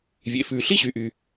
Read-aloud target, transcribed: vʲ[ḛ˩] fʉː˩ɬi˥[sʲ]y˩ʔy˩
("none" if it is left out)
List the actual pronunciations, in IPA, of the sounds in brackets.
ḛ˩, ɕ

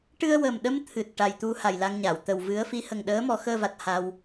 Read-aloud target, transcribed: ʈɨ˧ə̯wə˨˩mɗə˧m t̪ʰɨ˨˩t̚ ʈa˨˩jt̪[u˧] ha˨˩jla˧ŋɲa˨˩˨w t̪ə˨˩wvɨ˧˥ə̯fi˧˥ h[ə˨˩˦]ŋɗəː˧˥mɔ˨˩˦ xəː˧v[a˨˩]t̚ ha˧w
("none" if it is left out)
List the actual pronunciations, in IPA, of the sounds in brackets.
u˧, ə˨˩, a˨˩

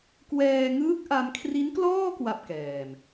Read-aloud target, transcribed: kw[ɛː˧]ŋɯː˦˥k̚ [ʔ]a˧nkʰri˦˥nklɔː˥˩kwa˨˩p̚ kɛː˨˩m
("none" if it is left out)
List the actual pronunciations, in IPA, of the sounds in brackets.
ɛː˧, ʔ

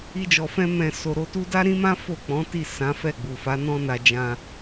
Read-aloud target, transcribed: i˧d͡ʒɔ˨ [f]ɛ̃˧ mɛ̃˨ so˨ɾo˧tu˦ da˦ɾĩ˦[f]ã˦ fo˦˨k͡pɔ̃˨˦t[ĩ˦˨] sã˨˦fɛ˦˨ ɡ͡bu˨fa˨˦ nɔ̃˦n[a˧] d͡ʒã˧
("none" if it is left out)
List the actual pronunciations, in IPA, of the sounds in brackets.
f, m, i˦˨, a˧

